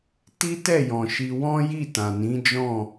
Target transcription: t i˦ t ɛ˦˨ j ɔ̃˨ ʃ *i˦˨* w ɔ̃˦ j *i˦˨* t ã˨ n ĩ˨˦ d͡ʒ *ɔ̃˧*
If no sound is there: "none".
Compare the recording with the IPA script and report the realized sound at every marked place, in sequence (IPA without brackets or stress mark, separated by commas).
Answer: i˧, i˦˨, ɔ̃˦˨